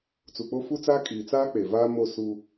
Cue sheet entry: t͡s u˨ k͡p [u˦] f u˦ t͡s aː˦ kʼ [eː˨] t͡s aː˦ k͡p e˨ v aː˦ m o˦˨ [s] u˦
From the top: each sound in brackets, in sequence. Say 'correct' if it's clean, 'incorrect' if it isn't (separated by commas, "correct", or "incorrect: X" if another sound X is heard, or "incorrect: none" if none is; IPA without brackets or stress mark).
incorrect: o˦, incorrect: iː˨, correct